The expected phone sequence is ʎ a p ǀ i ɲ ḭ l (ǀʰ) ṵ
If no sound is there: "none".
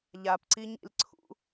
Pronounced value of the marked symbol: ǀʰ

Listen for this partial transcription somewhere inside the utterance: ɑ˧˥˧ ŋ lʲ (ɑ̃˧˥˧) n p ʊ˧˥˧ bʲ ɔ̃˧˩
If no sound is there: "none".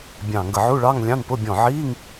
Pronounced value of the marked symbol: ɑ̃˧˥˧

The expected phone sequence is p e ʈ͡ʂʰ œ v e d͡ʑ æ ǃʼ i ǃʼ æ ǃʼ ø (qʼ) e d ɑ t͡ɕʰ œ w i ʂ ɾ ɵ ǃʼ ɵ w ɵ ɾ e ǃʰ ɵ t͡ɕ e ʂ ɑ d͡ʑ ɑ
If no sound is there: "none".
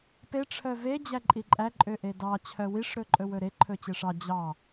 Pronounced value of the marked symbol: ʔ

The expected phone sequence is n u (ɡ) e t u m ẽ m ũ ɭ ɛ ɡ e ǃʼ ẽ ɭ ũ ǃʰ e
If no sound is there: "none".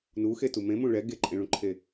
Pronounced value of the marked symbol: x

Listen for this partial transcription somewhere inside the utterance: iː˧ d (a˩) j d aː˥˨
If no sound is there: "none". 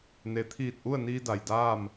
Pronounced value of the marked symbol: a˩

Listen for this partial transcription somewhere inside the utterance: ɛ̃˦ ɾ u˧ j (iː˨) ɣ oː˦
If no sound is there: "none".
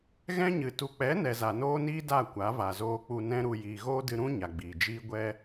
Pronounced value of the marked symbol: iː˨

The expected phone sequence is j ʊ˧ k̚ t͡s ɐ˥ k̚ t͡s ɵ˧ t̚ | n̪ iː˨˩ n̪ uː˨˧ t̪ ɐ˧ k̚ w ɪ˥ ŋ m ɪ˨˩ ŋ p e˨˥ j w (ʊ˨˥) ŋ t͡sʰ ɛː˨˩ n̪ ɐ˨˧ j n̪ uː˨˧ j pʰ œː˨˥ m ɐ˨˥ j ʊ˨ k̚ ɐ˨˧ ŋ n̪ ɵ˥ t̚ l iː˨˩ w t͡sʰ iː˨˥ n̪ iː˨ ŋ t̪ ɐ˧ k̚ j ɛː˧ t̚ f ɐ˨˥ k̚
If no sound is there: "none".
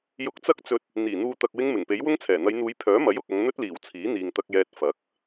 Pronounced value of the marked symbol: ʊ˥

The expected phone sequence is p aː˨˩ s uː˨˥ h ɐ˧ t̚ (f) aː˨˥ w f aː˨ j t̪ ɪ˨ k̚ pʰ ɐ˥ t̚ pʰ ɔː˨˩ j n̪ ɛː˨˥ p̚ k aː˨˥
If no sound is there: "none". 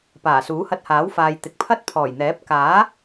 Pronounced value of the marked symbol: h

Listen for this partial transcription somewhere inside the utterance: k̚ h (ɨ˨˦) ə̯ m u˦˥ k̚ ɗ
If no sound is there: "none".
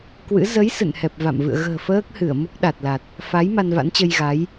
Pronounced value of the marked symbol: ɨ˧˩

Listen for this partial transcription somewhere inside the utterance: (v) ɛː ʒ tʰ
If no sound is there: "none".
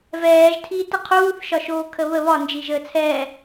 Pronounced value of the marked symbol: v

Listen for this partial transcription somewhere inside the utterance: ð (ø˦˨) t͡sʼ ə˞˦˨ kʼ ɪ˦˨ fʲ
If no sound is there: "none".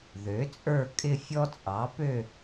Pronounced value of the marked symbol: ø˩˥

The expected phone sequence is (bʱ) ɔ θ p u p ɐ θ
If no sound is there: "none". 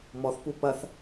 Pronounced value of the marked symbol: m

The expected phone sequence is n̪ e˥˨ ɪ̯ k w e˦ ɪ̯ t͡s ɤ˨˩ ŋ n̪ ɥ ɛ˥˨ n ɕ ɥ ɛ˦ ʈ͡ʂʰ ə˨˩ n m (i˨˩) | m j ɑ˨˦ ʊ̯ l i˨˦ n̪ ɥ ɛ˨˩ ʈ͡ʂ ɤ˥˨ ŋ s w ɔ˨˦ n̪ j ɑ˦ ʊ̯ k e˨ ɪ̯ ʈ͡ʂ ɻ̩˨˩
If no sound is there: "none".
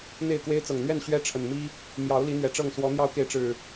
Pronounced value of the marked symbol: i˦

